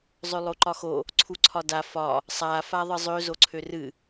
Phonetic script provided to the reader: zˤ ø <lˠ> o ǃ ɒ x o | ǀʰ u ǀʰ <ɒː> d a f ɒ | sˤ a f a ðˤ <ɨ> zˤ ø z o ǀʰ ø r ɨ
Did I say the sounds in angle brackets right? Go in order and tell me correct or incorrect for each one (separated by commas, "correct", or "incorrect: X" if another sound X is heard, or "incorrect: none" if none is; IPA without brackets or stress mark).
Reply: correct, incorrect: ɒ, correct